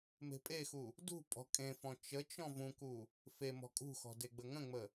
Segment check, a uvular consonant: absent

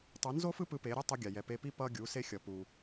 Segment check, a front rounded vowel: absent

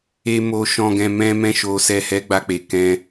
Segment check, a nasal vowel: present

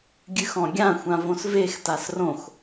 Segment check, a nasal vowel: present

